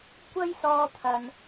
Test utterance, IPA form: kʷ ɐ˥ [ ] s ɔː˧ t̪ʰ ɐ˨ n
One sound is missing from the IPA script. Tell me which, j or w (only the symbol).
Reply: j